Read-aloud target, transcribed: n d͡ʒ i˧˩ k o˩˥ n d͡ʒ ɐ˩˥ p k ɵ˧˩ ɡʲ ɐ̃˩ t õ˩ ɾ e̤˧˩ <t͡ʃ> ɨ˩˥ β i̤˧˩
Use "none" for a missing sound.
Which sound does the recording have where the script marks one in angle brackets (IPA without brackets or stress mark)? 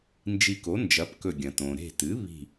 t